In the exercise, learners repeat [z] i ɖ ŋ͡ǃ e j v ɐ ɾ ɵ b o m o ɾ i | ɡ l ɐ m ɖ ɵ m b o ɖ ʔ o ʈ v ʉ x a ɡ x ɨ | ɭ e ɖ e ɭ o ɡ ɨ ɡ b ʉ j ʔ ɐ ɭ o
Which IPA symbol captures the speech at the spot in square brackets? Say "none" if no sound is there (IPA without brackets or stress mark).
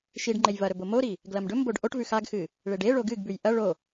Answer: ʃ